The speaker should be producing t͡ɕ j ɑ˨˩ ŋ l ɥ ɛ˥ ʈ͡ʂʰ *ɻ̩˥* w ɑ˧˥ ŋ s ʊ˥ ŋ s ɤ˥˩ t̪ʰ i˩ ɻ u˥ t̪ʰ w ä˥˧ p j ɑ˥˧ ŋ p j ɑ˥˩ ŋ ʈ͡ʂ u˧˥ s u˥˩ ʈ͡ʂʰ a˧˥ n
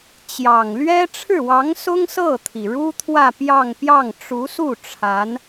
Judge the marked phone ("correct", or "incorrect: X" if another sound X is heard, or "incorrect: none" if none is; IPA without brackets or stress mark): incorrect: ɻ̩˥˩